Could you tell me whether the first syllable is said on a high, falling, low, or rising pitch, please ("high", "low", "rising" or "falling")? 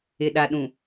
low